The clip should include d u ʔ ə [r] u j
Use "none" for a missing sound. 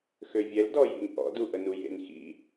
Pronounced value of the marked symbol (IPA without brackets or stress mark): n